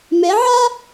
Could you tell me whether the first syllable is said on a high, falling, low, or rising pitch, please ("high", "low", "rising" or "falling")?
rising